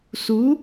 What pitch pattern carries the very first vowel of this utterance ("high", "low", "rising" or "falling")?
rising